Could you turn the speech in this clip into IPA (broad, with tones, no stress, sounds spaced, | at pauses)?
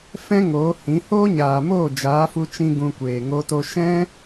f ɛ̃˦ ŋ oː˨˦ h ĩ˨˦ h oː˦ ɲ aː˨ m oː˦˨ d͡ʒ aː˨˦ f u˧ t͡ʃ ĩ˧ ɡ ũ˧ kʷ eː˨ ŋ o˧ t o˧ ʃ ɛ̃˦